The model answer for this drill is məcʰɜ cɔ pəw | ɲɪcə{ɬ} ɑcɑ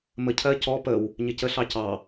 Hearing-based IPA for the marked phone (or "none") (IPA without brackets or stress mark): ɬ